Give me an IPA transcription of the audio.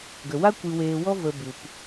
ɡ ə˨ w a˦ kʷ ɨ˧ w eː˧ w ɔ˦ v ə˧ b u˨ p

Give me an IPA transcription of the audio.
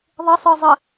ðˤ ɘ sˤ ə˞ zˤ ə

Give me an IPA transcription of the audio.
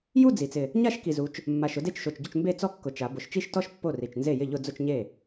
j u˥˧ d͡z i˩˧ t͡s ɪ˨˩ | ɲ a˥˧ ʃ k i˨˩ z u˩˧ t͡ʃ | mː a˨˩ ʃ ʊ˥˧ d e˥˩ t͡ʃ ʃ o˨˩ t͡ʃ ɟ ʊ˥˩ t͡ʃ m b e˥˧ t͡s ɔ˥˩ kː ʊ˨˩ t͡ʃ a˩˧ b ʊ˨˩ ʃ t͡ʃ i˥˩ ʃ t ɔ˥˧ ʃ pː o˥˩ r i˨˩ t͡ʃ n z e˥˩ j ɪ˥˩ ʎ ʊ˥˧ d͡z ʊ˥˧ t͡ʃ ɲ e˥˩

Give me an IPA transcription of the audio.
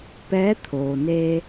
p ɛː˧˥ t̪ʰ oː˩ n eː˧

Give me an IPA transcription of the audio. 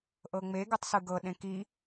ʔ ɤ ŋ͡m e ɡ ɯ tˤ s ɯ ɡ ɤ ɗ ẽ k i

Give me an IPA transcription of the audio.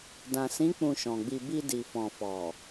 d ã˨ s ĩ˨˦ k͡p ũ˧ ʃ ɔ̃˨ ɡ͡b i˧ b i˧ d i˨ f ɔ̃˨ f ɔ˨

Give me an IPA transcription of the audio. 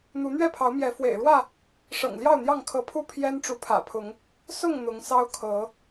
n̪ u˨˦ n̪ ɥ ɛ˥˨ pʰ ɑ˨˦ ʊ̯ m j ɛ˨˦ f w ḛ˨˩ ɪ̯ ɻ w ä˥˨ | ʂ ɤ̰˨˩ ŋ l j ɑ˥˨ ʊ̯ n̪ j ɑ˥˨ ŋ kʰ ɤ˨˦ pʰ u˦ pʰ j ɛ˦ n ʈ͡ʂ u˨˦ pʰ ä̰˨˩ pʰ ʊ˨˦ ŋ | s ʊ˥˨ ŋ n̪ ʊ˨˦ ŋ s ɑ˦ ʊ̯ kʰ ɤ˨˦

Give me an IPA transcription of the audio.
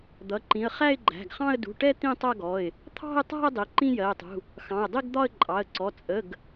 d̪ ʌ˩˧˩ ǃ ĩ˩˧˩ ə̯ χ æ˥˧ ɪ̯ ɡ͡ǃ æ̤˩˧˩ ɡ χ ɑ̃˥˧ ə̯ d ṳ˩˧˩ ʈ ɛ˥˧ t̪ ĩ˥˧ tˤ ʌ˥˧ ɡ ɔ˩˧˩ ɪ̯ | t̪ʰ ɑ̤˥˧ ɪ̯ tˤ æ̤˥˧ ə̯ dˤ i˩˧˩ ǃ ĩ˥˧ j ɜ˩˧˩ ɪ̯ tˤ ṳ˩˧˩ | x ɑ̃˩˧˩ ʊ̯ dˤ i˥˧ ɡ d̪ ɒ˥˧ ə̯ ǃʼ ɑ˩˧˩ ə̯ ǀ ɔ˩˧˩ t͡sʼ ə˩˧˩ ɡ

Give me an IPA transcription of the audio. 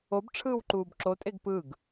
o b ʈ͡ʂʰ ɯː w ǃ uː b ǁ o tʼ e ɡ p ɯ ɡ

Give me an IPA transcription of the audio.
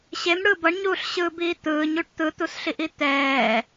ɕ e m ɽ ɯ b ʌ ɳ ɲ uː ɬ ɕ ɯː b iː t̪ ɯː ɲ u ʈ t̪ ɯ t̪ u s ɬ i ʔ i t̪ ɛː

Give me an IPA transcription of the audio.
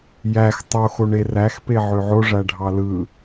j æ x tˤ o x o ɳ e r æ x p e ʕ ø ʕ o ʐ æ ɖʱ ɑ l ɯ

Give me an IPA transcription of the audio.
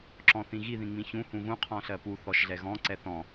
ǁ ɔ̃ θ ĩ ɣ i ð ĩ ŋ͡m ĩ ç ũ h ũ ɣ ũ qʰ ɔ̃ ɬ ɜ p u θ ɔ ʃ ɮ ɛ ɣ ɔ̃ ǀ ɛ θ ɔ̃

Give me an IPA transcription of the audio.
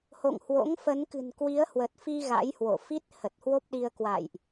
h o̰˧˨ ŋ h w o̰˧˥ ŋ f ə˨˦ n k ɨ̤˨˩ n k w i˨˦ ə̯ h w ə˨˩ t̚ f i˧ ɣ a̰˧˥ j h w o̰˧˨ f i˦˥ t̚ h ə˨˩ t̚ h w o˦˥ p̚ ɗ i˧ ə̯ k w a̰˧˨ j ʔ

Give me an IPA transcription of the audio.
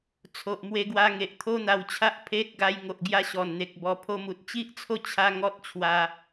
t͡sʰ o˨ ʔ m w e˧ ɡ w a˧ ŋ e˨ ʔ t̪ʰ o˦ n̪ a˧ w t͡ɕʰ a˦ ʔ pʰ e˦ t̚ ɡ a˧ j ŋ o˨ ʔ ɡ j a˧ ɕ ɔ˨˩ n n̪ e˨ k̚ b ɔ˧ pʰ o˧ m u˨ t̚ t͡ɕ i˦ ʔ t͡sʰ o˥˧ t͡ɕʰ a˦ ŋ ɔ˦ t̚ t͡ɕʰ w a˧

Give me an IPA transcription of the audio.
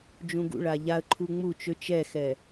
d͡ʒ ũ ɡ ṵ ɭ a ʎ a ə̯ ǃʰ u ŋ͡m u t͡ʃ ø t͡ʃ ɛ x ɛ

